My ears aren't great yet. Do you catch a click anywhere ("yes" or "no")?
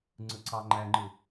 yes